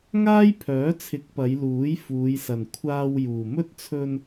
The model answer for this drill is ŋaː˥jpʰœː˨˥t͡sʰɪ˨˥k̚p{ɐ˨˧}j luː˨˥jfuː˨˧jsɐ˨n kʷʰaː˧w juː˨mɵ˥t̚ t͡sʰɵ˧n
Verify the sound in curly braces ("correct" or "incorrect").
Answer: correct